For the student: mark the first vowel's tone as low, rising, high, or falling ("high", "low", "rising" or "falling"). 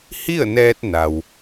falling